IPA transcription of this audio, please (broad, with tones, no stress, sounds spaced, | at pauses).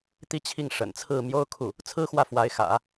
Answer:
t̪ i˥˧ t͡ɕʰ i˥˩ ŋ ʂ ə̰˨˩ n t͡sʰ ɹ̩˥˩ m j o˥ ʊ̯ kʰ u˥˩ | t͡sʰ ɹ̩˥ x w ä˥˩ f w a˧˥ ɪ̯ x ä̰˨˩˦